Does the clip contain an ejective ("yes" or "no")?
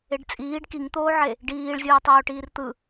yes